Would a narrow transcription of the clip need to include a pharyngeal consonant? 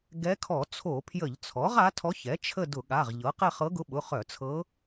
no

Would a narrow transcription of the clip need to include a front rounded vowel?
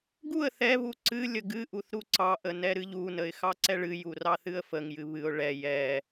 no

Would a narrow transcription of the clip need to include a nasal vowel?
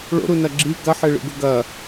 no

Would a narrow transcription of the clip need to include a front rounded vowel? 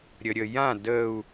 no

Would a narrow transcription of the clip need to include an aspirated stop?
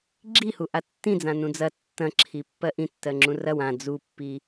yes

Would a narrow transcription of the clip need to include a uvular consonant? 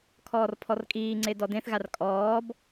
no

